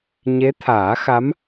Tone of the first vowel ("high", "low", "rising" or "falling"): rising